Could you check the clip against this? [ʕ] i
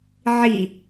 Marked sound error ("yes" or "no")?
no